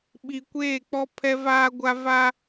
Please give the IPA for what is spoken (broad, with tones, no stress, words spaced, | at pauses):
ɓi˨kʷeː˦˨k͡pɔ˦ pʰɛ˦vaː˦ɡʷa˦ va˦